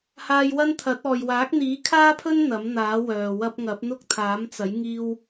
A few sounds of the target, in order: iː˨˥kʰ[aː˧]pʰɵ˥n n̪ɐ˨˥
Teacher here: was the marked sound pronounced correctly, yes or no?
no